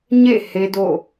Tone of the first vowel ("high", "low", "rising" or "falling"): falling